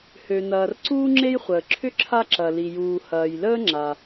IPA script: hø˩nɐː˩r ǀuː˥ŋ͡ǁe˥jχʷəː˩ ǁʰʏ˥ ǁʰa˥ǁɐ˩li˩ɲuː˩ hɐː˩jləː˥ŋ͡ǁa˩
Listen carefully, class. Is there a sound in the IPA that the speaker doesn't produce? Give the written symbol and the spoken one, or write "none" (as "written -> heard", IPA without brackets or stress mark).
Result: ɲ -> j